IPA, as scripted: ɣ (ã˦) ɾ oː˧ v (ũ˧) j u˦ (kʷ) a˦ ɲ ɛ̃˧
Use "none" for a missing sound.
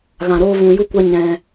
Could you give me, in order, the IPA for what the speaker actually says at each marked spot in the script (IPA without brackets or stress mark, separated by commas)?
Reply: ã˨, ũ˨, kʷ